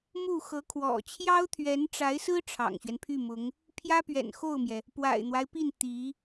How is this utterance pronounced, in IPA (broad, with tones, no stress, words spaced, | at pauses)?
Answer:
mu˥˩xɤ˧˥kʰwɔ̰˨˩ t͡ɕʰjɑ˥ʊ̯t̪ʰɥɛ˧˥nʈ͡ʂa˧˥ɪ̯sɹ̩˥ ʈ͡ʂʰɑ̰˨˩ŋɕɥɛ˦npʰy˥˩mʊ˧˥ŋ | pʰjä˥pɥɛ̰˨˩nxo˥˩ʊ̯mjɛ˩ | pwa̰˨˩ɪ̯n̪wa˦ɪ̯pi˥˩n t̪i˧˥